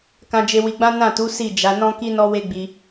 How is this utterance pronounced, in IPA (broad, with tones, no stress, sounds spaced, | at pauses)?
k ã˧ d͡ʒ e˧ w i˧ ɡ͡b ã˦ n ã˦˨ t u˨˦ s i˦˨ d͡ʒ a˨˦ n ɔ̃˦ k i˦ n ɔ˦ w e˦ ɡ͡b i˧